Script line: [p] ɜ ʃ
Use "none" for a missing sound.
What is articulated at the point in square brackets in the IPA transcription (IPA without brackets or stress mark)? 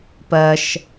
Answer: p